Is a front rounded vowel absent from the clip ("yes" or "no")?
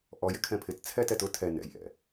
yes